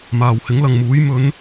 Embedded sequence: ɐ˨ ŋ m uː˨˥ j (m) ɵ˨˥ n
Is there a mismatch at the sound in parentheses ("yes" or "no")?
no